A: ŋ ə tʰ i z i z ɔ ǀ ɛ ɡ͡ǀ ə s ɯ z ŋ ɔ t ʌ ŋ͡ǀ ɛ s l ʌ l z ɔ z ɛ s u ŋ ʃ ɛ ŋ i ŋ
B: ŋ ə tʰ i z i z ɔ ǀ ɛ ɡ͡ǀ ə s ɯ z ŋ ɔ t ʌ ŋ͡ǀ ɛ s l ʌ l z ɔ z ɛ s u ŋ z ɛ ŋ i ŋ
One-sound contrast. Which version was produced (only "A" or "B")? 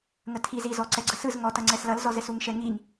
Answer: A